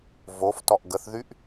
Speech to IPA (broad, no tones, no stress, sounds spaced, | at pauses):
v o f t ɔ ʔ ɡ ə θ ð y ʔ